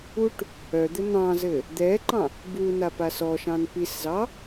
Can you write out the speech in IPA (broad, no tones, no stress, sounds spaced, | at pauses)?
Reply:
u ʈ | œ d̪ ɘ n̪ ɑ̃ z ɘ | d̪ ɛ ǃ ɑ̃ | b u n a p a s ɔ ʃ ɑ̃ n p i s z ɑ